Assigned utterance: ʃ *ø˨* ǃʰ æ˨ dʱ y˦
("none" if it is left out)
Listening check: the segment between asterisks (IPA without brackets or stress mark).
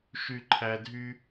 y˨